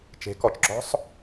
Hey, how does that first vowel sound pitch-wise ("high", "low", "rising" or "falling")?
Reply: rising